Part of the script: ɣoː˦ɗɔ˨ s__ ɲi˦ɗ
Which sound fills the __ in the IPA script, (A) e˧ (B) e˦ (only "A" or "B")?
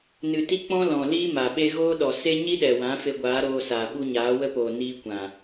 B